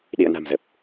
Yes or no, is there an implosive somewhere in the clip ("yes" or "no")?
yes